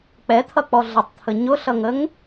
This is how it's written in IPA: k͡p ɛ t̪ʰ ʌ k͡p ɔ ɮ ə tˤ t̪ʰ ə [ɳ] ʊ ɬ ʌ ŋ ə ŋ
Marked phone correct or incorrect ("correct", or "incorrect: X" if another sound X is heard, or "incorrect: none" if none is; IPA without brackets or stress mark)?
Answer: incorrect: ɲ